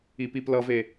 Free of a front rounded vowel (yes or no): yes